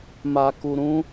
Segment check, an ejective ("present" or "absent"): absent